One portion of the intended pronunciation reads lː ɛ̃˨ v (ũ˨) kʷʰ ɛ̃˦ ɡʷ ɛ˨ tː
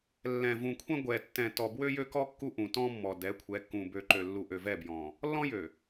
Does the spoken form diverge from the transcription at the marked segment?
no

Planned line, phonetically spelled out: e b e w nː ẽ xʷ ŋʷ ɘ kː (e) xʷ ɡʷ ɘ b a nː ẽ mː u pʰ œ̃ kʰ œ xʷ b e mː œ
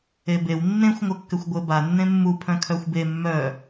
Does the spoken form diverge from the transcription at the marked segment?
yes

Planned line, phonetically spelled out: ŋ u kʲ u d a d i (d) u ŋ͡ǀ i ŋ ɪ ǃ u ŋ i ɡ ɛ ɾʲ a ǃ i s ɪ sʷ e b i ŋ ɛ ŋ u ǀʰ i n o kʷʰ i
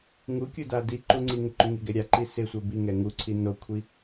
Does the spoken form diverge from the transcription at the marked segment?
yes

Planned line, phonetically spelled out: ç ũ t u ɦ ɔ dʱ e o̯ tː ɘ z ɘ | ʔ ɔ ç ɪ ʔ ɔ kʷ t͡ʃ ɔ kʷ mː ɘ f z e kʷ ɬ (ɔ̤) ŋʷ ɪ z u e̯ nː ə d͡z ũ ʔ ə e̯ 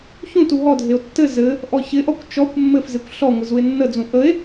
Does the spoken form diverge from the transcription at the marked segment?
yes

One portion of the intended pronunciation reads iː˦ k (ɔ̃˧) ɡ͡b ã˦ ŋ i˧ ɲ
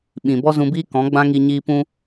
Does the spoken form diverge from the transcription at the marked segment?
yes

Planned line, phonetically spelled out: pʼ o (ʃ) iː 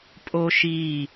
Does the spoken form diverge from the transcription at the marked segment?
no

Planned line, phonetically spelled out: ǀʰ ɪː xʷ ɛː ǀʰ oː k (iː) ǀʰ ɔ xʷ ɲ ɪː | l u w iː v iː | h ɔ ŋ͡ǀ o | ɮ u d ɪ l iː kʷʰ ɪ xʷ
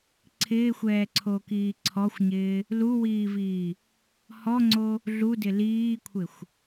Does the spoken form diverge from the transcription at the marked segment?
no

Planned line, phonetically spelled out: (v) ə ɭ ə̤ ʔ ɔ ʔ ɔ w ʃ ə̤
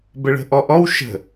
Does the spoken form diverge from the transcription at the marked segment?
yes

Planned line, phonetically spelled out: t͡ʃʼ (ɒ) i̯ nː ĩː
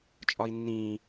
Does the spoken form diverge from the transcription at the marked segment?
no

